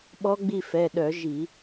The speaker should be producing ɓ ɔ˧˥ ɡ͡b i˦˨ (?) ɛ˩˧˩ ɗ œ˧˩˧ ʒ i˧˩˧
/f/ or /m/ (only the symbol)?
f